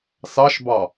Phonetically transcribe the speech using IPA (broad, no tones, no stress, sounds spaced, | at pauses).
s ɑ ʃ b ɑ